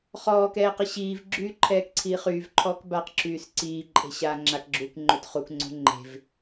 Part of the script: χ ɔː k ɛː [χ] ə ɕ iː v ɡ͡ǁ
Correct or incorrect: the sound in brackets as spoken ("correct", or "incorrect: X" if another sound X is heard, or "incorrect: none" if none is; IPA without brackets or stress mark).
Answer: incorrect: q